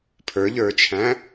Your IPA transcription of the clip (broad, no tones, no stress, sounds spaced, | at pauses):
pʰ ə˞ ʎ ə˞ t͡ʃʰ æ̃